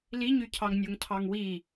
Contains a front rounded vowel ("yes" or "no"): yes